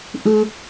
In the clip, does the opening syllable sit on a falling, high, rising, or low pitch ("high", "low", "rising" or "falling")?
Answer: high